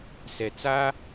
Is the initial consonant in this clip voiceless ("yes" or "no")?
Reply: yes